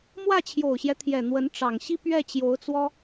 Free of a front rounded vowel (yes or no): yes